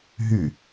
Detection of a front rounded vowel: present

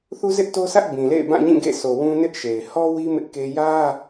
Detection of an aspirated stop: absent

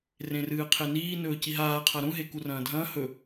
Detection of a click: absent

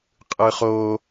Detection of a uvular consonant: present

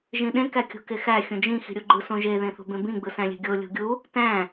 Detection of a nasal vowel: present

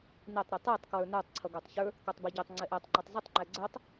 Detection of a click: present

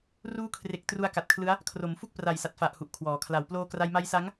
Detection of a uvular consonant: absent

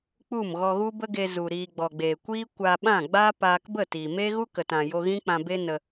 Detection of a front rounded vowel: absent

